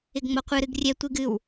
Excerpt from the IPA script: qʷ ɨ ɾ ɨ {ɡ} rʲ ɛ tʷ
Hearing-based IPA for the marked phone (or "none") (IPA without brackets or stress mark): ɡ